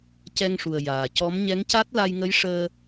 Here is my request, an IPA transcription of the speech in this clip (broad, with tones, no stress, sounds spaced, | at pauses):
c ɛ˧ ŋ ʂ u˨˩ ə̯ j aː˨˩ c ɔ˧˥ m ɲ ɛ˧˥ ŋ c a˦˥ t̚ l a˧ j ŋ ə˧˥ j ʂ əː˧